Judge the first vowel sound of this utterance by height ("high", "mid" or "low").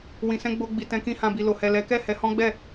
high